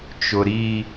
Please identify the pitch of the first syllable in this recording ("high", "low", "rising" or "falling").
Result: high